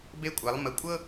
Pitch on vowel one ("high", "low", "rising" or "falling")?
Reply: high